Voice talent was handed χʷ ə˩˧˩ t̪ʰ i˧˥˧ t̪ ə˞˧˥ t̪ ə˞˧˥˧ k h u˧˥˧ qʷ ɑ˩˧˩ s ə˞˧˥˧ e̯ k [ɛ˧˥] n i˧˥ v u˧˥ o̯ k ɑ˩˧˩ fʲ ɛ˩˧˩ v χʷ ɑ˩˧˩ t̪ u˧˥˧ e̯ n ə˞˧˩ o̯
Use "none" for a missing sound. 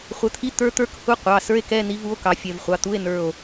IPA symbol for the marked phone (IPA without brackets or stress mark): ɛ˧˥˧